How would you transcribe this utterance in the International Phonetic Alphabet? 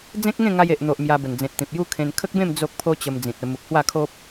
d͡z ẽ˦ k̚ ŋ ẽ˥˧ ŋ a˧ j e˨ ʔ n̪ o˨ ʔ m j a˧ b ə˨˩ n d͡z ẽ˨ t̚ t̪ ĩ˨ p̚ j u˦ kʰ ẽ˧ n kʰ ə˦ k̚ b ẽ˥˧ m d͡z o˦ k̚ pʰ o˦ t͡ɕ ə˧ m d͡z ĩ˨ t̚ ə˧ m u˨ k̚ h w a˥˧ kʰ o˦ p̚

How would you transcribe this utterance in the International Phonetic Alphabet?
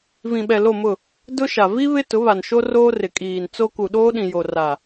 v ĩ˨ ɓ ɛ˨ l o˦˨ m ʊ˦˨ | d ʊ˦ ʃ a˨ v i˦ β ɪ˦ t ʊ˨˦ β a˨ n ʃ o˦ r oː˦ r ɪ˨ kʼ iː˨ n t͡s o˦ k u˨ ɗ oː˦ ɗ ĩ˨ j o˨ r a˨

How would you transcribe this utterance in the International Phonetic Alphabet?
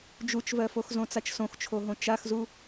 d͡ʒ u t͡ʃ v ɜ f o x z õ t͡s a t͡ʃ s õ x t͡ʃʰ o ɦ õ t͡ʃ a x z u

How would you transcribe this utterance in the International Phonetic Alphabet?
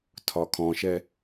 tʰ ɒ kʰ ɔ̃ ʃ ɛ

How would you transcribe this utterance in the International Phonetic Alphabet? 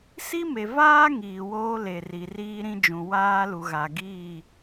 s i˦ m e˨ v aː˦ ŋ iː˨ w oː˦ l e˨ r i˨ r iː˦ ɾ ĩ˦ d͡ʒ ũ˨ w aː˦ l u˨ ɣ a˨ ɡ iː˦˨

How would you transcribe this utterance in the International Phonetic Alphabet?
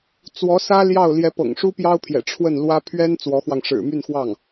t͡s w ɔ˧˥ s ä˥ l j ɑ˥˩ ʊ̯ l j ɛ˧˥ p ɤ̰˨˩ ŋ ʂ u˥ p j ɑ˥ ʊ̯ pʰ j ɛ̰˨˩ ʈ͡ʂʰ w ə˥˩ n l w ä˥ pʰ ɥ ɛ˥ n t͡s w ɔ˧˥ x w ɑ˧ ŋ ʂ ɻ̩˨˩ m y˥˧ n x w ɑ˥˩ ŋ

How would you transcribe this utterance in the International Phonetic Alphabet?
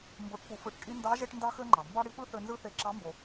m b o˧˥ ʈ p u˧ f ɯ˧˥ ʈ kʼ i˥ n d ɑ˧˥ ʒ e˥ ʈ n d ɑ˥ x ø˥ ŋ͡ǃ ɑ˩ m b ɑ˥ ɽ i˧˥ p ɯ˥ θ ø˧ n z ɯ˥ θ e˧ ǁ ɑ˧˥ m b o˩

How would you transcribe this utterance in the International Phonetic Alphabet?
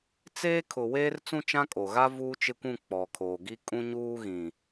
t͡s eː˦ kʰ ʊ˨ w eː˦ r t͡s ũ˦ t͡ʃ ã˦ kʼ o˨ ɣ a˦ v uː˦ t͡ʃ ɪ˦ kʷ ũ˦˨ k͡p ɔ˨ kʰ oː˨ ɡ i˦ kʼ ũ˦ ɲ uː˦ ɣ ĩ˨

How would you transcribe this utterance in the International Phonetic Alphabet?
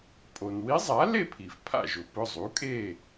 pʼ o˩ n w i˧˥ zˤ a˩˥ l e˥˨ pʰ i˩ f pʰ a̰˥˨ ʒ ʊ˩˥ p ʊ˩˧˩ zˤ u˩˥ kʼ e˥˨

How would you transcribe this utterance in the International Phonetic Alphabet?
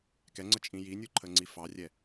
k ɛ ŋ͡ǀ ə t͡ʃʼ ĩ j i nʲ u ǃʰ ə ŋ͡ǀ i f ɑ rʲ ɛ

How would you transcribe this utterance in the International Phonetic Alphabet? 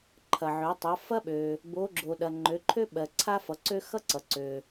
ǃʰ ɐ˩ ʕ ø˩˧ tˤ ʌ˩˧ f ɐ˦ ɓ ø˩ | b o˩˧ ɡ͡ǁ o˩ ɗ ɐ˩ ŋ͡ǃ ø˩˧ ǃʰ ø˦ ɓ ɜ˩ ǀʰ a˦ f ʌ˩˧ ǀ ø˦ x ʌ˦ ǀ ʌ˩ ǀ ø˩

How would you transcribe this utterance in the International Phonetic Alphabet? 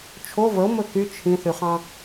t͡ʃʰ o v ə o̯ m ɵ k y t͡ʃʰ ĩ θ y χ ɑ̃

